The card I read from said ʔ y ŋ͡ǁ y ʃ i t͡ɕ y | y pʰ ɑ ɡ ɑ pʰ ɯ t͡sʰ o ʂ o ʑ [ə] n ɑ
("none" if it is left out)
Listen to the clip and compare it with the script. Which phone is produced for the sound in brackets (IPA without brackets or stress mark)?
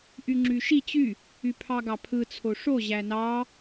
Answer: æ